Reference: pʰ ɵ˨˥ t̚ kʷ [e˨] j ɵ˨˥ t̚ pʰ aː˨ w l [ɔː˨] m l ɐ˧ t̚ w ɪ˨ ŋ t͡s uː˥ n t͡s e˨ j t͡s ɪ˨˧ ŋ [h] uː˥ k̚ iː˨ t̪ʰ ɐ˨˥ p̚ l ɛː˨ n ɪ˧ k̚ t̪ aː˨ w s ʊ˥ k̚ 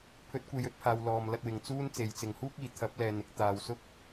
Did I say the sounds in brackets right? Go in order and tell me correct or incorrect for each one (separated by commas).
correct, correct, correct